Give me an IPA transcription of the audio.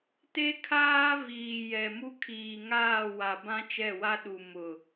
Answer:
t e˦ kʰ aː˦ v iː˨ j ɛ˨ m u˦ kʰ iː˨ ŋ aː˦˨ w a˨ b ã˦ t͡ʃ ɛ˦˨ w a˦ ɗ u˨ m ʊ˨

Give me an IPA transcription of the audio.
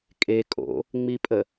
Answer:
kʼ e kʼ o̰ | ŋ͡m i pʼ ə

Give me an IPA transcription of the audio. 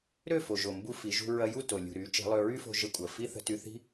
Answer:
ɾ ø˦˨ f o˨ ʒ o˨ m b u˧ f i˨˦ ʒ ṳ˦ ɹ ɐ˦ j u˦˨ t o˨ lʲ ṳ˨ ɾ y˨˦ t͡ʃ i̤˨˦ lˠ ø˧ ɹ y˦ f o̤˧ ʒ ə˧ kʷʼ ɐ˨ f i˦ θ ə̤˧ t y˧ θ i̤˦

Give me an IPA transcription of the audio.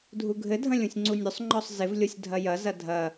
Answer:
dʱ u ɡʱ ɘ dʱ ɐ̃ lʲ ũ sʲ ŋ͡ǀ u nʲ ɵ sˤ ŋ͡ǃ ɔ sˤ z ɪ v lʲ o sʲ dʱ ɐ j ɐ z ɐ dʱ ɐ

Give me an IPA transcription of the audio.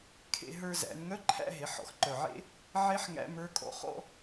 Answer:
kʰ ḛ˧ ɦ ə˞˧ z æ̰˩˧ n ŋ œ˧˥˧ ǃʰ æ̰˧˥˧ ɦ e˩˧ ħ ɔ̰˩˧ x ǃ œ˨˩ ʕ ḛ˦˥ | ʕ e˦˥ ħ ŋ æ̰˦˥ m ə˞˧˥˧ kʼ ɔ̰˦˥ χ ɔ̰˧

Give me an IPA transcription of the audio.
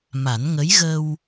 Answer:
m a˨˩˦ n ŋ ə˧˥ j ɣ ə˧ w

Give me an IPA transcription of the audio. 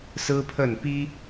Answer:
s ɹ̩˥ pʰ ə˥˩ n p i˥

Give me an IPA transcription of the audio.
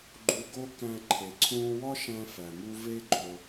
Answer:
ɡ͡ǃ u˧ ɡ o˥ k æ̃˧ ǃʰ e˩ ǀʰ ũː˧ w ɒ˥ ʃ æ̃˧ f æ˩ m u˧ v e˥ ɡ͡ǃ o˧

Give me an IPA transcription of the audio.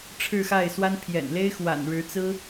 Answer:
ʈ͡ʂʰ ɻ̩˥˧ x a˥˩ ɪ̯ s w a˥ n pʰ j ɛ̰˨˩ n l e˥ ɪ̯ x w a̰˨˩ n ɻ ɻ̩˧˥ t͡s ɹ̩˥

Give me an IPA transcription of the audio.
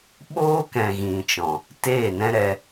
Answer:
ɓ oː˦ k ɛ̃˨ ɣ ĩ˨ t͡ʃ ɔ̃˨ | t eː˦˨ n ɛ̃˦ ɾ ɛ˧

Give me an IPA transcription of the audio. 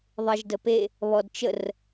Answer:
ðˤ e ʒ d ə p e | β ɔ d t͡ʃ ə r

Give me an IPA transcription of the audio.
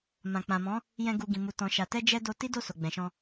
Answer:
m ã˨ k͡p ã˨ m ɔ̃˨˦ | j ɛ̃˧ ɡ u˨ ɡ ĩ˨ m u˨ t ɔ̃˨ ʃ a˨ t ɛ˧ d͡ʒ ɛ˧ d o˧ t i˦ d o˦˨ s o˨ ɡ͡b ɛ̃˨ ʃ ɔ̃˧

